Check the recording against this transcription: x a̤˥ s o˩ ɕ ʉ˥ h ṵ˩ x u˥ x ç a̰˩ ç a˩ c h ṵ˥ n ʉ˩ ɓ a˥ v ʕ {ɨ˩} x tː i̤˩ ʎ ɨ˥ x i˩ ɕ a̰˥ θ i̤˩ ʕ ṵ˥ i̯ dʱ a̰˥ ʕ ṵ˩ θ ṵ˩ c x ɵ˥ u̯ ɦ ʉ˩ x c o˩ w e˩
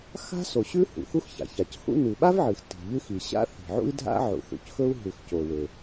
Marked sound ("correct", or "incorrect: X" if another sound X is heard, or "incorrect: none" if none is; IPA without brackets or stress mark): correct